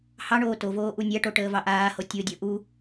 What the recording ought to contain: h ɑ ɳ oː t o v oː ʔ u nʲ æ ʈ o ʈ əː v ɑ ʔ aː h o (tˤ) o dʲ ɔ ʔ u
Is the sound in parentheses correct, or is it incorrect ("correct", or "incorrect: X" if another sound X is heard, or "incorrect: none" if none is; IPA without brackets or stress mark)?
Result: incorrect: tʲ